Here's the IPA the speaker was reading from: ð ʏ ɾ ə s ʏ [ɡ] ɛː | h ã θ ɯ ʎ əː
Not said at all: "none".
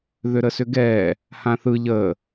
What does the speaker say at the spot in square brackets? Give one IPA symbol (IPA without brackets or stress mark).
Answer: ɡ